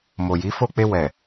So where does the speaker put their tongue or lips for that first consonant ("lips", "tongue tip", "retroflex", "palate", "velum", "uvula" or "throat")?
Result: lips